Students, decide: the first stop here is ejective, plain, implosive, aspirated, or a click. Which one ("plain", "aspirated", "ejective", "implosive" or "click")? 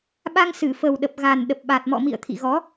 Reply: implosive